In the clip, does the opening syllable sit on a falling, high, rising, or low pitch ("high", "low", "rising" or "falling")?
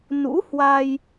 rising